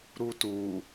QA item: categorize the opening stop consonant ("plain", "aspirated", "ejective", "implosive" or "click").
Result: plain